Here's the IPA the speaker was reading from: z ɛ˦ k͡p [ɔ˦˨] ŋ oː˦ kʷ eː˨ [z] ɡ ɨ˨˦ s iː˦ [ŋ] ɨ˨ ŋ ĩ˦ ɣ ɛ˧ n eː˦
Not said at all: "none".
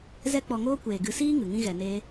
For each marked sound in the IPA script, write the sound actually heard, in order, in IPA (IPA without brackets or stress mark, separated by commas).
ɔ˧, none, ŋ